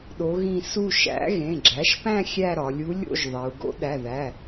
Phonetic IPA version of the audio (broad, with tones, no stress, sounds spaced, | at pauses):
ɗ o˧˥ ɣ ĩ˥˧ s u˥˧ ʃ æ̰˧˥ ɣ ẽ˩˧˩ ɡ͡ǁ æ˩˥ ʃ p æ̃˥˧ xʲ æ˥˧ ɾ ɒ˩˧ lʲ u˧˥ lʲ o̰˥˧ ʒ ðˤ e˩˧ u̯ ɡ o̰˧˥ ɗ æ˩˧˩ ð æ˩˧˩